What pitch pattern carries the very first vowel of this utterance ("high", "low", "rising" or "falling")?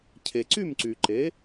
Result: low